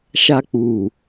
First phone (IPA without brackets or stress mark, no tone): ʃ